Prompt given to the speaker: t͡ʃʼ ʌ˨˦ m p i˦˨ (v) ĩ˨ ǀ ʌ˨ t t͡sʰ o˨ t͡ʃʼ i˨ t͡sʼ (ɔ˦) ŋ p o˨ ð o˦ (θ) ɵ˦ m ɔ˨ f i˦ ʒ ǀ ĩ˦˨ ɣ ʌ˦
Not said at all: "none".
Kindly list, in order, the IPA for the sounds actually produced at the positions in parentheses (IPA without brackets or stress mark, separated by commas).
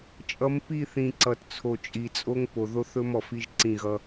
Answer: θ, o˦, θ